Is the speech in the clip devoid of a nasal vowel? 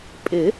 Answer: yes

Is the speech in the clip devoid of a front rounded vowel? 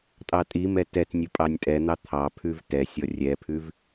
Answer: yes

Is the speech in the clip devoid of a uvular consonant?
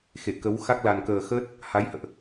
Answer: yes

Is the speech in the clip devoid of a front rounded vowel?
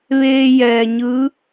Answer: yes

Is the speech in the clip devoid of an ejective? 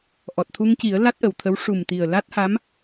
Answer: yes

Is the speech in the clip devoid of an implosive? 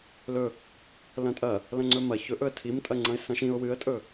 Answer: yes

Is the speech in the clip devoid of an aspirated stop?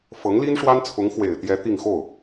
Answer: no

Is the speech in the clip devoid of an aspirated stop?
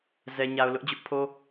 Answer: no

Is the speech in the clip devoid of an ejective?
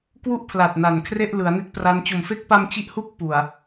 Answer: yes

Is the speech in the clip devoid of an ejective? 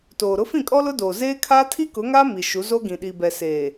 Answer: no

